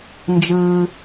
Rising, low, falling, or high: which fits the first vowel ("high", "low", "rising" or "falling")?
low